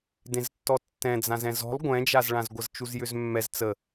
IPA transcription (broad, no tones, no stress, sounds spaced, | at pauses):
d ẽ z tː ɔ tː ɛ̃ d͡z ã z ɛ̃ z ɔ̤ lˠ ɡʷ ɛ̃ d͡ʒ a z ɭ ã z ɡʷ ə z t͡ʃ u z j ʏ z mː ɛ z t͡s ə